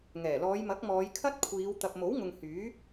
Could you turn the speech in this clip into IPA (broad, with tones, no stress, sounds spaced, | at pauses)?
ŋ ɛː˨˩ l ɔː˨˧ j m ɐ˨˥ k̚ m ɔː˨˧ j kʰ ɐ˥ t̚ kʷʰ iː˨˧ w t̪ ɐ˨ p̚ m o˨˥ w ŋ ʊ˨ ŋ h yː˨˥